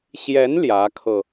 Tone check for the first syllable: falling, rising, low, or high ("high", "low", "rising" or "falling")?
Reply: rising